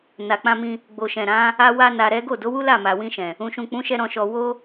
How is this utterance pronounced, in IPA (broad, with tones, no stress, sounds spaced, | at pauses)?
n a˨ k͡p ã˧ m ĩ˧ | ɡ͡b o˨ ʃ ɛ̃˨ ɾ ã˨˦ | a˦ w a˦ n a˧ ɾ ɛ˦ ɡ o˦˨ d o˨˦ w u˦ l a˦˨ m a˨ w ĩ˧ ʃ ɛ̃˨ | ũ˨ ʃ ũ˨ k͡p ũ˨˦ ʃ ɛ˧ ɾ ɔ̃˧ ʃ ɔ˧ w o˦